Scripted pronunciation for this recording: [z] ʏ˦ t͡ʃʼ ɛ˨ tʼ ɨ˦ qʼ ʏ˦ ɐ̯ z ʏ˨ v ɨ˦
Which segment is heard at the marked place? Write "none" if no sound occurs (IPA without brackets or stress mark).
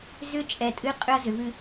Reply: z